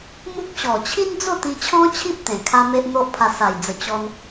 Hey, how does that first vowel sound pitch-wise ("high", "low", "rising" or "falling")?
high